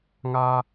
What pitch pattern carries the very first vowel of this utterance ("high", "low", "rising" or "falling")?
high